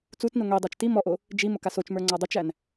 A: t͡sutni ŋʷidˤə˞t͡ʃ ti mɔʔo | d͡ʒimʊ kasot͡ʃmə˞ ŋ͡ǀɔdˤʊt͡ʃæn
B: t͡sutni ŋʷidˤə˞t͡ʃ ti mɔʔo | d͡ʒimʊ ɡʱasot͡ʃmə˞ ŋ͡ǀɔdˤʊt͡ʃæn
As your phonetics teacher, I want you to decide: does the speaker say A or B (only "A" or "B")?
A